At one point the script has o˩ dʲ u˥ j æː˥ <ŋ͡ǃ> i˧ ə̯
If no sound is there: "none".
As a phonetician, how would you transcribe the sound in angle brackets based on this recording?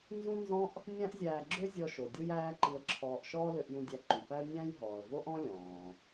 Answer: ǃ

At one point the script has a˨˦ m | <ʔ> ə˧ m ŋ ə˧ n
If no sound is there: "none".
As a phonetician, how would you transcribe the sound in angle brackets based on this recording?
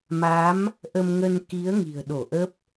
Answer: ʔ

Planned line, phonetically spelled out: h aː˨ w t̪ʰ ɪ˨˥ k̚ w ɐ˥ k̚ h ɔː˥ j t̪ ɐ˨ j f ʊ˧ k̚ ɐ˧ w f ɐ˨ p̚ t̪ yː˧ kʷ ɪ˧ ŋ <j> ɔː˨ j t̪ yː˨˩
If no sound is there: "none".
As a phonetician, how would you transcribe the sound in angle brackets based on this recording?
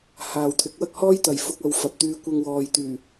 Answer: w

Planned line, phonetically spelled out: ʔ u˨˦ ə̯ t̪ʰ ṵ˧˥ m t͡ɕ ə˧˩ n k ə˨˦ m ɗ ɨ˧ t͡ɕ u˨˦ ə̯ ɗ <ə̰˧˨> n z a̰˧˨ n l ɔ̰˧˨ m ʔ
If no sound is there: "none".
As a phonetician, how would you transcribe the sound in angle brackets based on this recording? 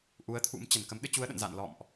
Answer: ə̰˧˨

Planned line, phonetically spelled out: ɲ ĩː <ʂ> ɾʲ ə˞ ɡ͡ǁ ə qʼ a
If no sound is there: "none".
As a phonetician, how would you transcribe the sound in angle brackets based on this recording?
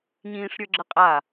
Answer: ʂ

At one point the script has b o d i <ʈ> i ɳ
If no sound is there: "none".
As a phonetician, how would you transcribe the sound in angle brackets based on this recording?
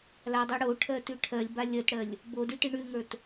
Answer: ʈ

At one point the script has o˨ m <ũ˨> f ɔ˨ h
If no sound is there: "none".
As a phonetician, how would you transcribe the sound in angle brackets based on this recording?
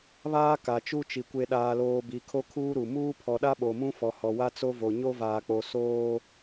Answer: ũ˦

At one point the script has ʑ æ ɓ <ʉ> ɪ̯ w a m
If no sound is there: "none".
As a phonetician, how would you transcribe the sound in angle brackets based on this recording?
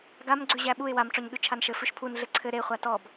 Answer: u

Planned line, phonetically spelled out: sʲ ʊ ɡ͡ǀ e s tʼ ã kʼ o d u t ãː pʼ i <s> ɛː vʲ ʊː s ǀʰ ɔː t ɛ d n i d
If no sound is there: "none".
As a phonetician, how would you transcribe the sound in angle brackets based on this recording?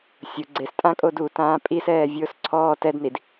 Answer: s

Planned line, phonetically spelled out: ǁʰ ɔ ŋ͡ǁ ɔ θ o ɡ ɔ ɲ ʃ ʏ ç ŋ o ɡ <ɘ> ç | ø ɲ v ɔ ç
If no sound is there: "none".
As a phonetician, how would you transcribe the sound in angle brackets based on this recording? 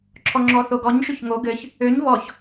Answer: ɘ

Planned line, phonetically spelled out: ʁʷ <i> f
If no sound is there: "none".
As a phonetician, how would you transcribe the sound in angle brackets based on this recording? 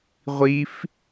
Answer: i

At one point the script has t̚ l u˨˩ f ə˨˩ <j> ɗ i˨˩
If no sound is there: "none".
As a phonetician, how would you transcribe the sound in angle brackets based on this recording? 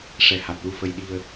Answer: j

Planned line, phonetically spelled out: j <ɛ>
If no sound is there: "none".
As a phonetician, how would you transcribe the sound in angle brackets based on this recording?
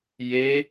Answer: e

